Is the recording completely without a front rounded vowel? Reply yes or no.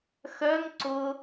no